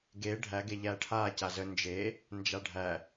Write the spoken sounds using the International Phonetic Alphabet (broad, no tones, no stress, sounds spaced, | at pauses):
ɡ e ɖʱ æ ɡ e ʎ æ ʈʰ a c a z ə n d͡ʒ e | n d͡ʒ a ɖʱ æ